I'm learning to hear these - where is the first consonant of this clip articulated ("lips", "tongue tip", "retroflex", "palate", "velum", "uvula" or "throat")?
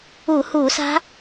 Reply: throat